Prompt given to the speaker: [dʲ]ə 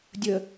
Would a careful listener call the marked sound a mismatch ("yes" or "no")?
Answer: no